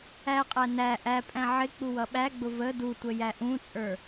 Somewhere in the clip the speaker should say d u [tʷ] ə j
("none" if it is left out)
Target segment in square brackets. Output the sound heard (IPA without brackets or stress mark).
tʷ